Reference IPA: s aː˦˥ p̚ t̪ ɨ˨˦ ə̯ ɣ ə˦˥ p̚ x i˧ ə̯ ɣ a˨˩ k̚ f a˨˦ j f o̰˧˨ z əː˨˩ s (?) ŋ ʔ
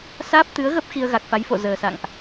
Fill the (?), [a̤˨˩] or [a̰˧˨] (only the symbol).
a̰˧˨